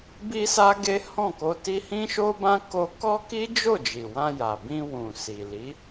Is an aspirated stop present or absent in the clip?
absent